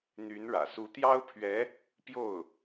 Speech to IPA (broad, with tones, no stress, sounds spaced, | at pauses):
n̪ y˧˥ n ɻ ä̰˨˩ s u˧˥ t̪ j ɑ˥ ʊ̯ pʰ ɥ ɛ˧˥ | p j o˥˩ ʊ̯